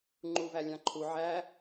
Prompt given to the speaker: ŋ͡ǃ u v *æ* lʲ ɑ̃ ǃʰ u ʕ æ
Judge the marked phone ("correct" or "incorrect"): correct